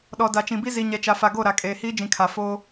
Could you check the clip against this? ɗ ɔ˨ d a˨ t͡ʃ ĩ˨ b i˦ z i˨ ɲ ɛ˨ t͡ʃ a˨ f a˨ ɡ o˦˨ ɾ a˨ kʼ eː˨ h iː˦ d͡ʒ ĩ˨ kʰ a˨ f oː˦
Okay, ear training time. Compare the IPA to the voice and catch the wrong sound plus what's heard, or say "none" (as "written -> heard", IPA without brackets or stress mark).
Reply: none